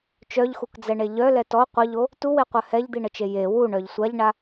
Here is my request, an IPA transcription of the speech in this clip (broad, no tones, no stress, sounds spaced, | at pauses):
t͡ʃ œ ʎ x u k d͡z ɛ ɳ e ʎ œ l ɛ t ɔ qʷ ə ʎ o | t u w e qʷ œ h ɛ ʎ d̪ i ɳ ə t͡ʃ e j e w u ɳ œ ʎ sʷ a ʎ ɳ a